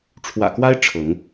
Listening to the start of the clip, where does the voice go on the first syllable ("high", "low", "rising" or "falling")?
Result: low